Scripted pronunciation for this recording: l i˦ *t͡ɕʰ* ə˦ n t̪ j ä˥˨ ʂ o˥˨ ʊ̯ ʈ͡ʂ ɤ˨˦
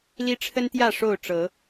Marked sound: incorrect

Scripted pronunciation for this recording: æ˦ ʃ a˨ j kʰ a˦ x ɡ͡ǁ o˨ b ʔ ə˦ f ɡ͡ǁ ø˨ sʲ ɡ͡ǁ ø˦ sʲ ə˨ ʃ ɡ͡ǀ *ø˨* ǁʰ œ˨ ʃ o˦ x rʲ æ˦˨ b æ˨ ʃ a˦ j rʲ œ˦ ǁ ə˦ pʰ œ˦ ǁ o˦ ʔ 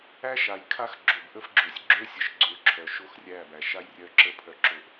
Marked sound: correct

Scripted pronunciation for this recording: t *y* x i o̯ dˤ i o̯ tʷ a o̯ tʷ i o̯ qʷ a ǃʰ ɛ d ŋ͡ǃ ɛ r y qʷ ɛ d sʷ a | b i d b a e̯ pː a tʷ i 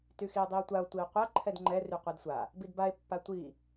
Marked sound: correct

